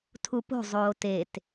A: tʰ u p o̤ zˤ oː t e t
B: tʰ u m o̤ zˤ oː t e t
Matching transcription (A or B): A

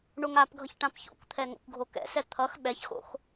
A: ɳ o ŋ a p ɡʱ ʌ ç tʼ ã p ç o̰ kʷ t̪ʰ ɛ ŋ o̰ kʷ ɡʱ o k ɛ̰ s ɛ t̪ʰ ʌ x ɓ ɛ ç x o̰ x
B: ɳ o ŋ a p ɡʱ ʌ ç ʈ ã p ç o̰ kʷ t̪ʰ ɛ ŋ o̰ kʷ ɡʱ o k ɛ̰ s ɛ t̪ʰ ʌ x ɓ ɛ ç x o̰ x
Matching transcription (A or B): B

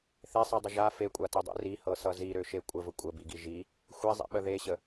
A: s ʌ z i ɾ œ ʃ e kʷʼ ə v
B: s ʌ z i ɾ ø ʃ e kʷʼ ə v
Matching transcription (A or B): B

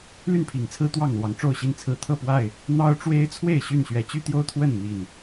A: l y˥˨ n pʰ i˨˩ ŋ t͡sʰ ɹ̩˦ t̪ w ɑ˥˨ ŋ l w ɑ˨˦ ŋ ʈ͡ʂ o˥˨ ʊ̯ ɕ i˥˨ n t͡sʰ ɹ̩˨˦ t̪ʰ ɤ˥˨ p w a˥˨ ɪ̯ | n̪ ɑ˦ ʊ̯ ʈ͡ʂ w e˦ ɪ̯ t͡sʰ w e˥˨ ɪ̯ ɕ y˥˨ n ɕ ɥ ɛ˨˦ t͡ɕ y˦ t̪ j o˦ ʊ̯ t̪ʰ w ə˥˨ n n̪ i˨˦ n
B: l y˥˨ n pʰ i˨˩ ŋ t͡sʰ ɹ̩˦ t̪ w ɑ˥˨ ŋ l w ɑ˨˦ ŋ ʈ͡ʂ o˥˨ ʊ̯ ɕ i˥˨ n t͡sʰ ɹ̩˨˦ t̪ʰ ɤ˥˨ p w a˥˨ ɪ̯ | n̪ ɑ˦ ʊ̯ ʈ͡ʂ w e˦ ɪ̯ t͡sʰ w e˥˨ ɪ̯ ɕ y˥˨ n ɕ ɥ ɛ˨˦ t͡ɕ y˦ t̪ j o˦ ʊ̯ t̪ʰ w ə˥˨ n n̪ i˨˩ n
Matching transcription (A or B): B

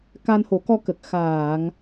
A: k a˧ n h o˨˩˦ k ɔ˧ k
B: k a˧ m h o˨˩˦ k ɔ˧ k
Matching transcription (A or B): A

